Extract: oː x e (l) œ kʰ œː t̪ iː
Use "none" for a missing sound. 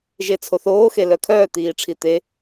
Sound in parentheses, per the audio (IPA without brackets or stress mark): l